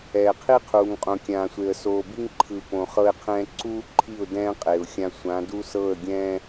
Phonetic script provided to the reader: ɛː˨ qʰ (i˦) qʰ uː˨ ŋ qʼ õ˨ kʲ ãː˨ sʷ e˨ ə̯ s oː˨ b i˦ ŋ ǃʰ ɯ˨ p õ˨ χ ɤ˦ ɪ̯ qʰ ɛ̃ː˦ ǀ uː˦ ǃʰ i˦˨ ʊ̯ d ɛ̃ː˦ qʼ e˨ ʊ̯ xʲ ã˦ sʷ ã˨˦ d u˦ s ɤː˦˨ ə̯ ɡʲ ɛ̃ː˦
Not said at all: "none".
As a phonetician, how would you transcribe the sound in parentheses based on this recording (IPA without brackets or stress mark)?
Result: i˦